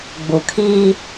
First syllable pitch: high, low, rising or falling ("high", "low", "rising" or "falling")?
low